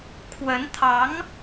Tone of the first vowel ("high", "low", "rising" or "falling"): rising